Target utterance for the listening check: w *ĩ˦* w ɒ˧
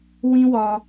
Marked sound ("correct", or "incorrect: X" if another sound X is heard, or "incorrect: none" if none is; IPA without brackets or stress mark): correct